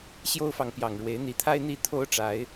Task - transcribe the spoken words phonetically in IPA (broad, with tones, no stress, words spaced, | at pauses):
ɕjo˦ʊ̯fɑ˨ŋpjɑ˨˩ŋɻwe˨˦ɪ̯ n̪i˨˦t̪ʰa˦ɪ̯n̪i˥˨ t̪ʰo˦ʊ̯ʈ͡ʂa˨˦ɪ̯